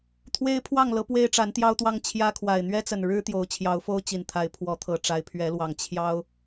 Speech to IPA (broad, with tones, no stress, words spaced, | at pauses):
t̪ʰwe˦ɪ̯pʰwɑ˥˨ŋlɤ˨˦ pwe˦ɪ̯ʈ͡ʂa˨˦nt̪jɑ˦ʊ̯t̪wɑ˦ŋ t͡ɕʰjä˦kʰwa˨˩ɪ̯ n̪ɥɛ˦t͡sə˨˩nɻɻ̩˦ t̪jo˨˦ʊ̯t͡ɕʰjɑ˨˦ʊ̯fo˦ʊ̯ t͡ɕi˨˩nt̪ʰa˨˦ɪ̯ pʰwɔ˨˦t̪ʰɤ˨˩ʈ͡ʂa˨˦ɪ̯ pʰɥɛ˨˦lwɑ˨˩ŋ t͡ɕʰjɑ˦ʊ̯